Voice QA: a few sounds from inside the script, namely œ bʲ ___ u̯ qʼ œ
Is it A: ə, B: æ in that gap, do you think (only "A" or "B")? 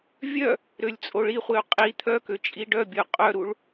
A